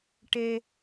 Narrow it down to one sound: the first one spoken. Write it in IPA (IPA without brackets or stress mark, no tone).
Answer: ʈ